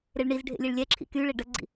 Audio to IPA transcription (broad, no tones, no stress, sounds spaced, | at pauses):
ɾ e ɭ ɳ i z ɖʱ ḛ lʲ e ɭ lʲ ɛ ǁʰ ḭ k y ɭ e ɖ ə ɡ͡ǀ ḭ